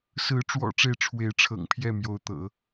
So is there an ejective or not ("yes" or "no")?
no